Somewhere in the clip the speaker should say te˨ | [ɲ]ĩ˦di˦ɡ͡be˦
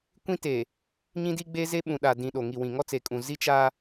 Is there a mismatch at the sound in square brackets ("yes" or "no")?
no